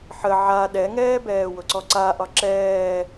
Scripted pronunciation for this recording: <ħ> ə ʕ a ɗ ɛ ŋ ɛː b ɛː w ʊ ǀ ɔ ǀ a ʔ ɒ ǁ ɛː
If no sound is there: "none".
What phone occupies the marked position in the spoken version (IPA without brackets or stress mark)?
ħ